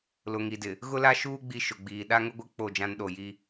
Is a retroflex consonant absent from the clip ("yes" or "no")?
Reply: yes